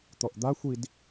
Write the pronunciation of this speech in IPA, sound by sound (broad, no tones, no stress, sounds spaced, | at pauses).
t̪ ɔ ʔ d̪ a xʷ i d